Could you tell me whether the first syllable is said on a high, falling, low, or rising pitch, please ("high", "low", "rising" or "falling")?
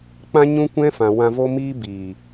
high